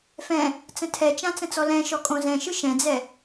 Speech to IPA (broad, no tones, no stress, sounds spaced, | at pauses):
f ɛ̃ | t͡s ə̃ tʰ ɛ t͡ʃ ã t͡s ə̃ t͡s ɔ l ɛ̃ ʃ ɔ kʼ õ z ɛ̃ ʃ ɯ ʃ ɛ̃ d͡z ɛ